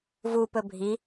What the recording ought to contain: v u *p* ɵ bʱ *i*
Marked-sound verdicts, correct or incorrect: correct, correct

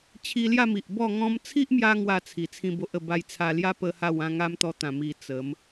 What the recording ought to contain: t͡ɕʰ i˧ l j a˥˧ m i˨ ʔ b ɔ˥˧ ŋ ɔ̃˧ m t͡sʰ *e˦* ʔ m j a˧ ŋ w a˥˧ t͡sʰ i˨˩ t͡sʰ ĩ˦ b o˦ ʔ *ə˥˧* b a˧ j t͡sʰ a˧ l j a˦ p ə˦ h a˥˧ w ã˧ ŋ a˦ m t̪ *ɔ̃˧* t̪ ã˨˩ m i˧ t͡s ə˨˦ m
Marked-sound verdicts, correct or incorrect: incorrect: i˦, correct, incorrect: ɔ˧

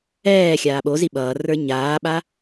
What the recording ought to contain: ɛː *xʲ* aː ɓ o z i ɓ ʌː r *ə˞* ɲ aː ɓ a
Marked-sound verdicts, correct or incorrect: correct, correct

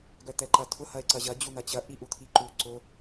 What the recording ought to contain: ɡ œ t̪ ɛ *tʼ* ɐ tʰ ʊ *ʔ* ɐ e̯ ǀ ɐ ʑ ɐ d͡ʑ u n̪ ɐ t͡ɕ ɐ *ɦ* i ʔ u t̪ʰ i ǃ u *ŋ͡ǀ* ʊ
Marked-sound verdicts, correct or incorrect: incorrect: ǃ, incorrect: h, incorrect: ʔ, incorrect: ǀ

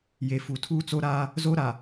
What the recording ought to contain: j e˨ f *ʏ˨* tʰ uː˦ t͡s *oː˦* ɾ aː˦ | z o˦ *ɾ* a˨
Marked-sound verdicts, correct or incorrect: incorrect: u˨, incorrect: o˦, correct

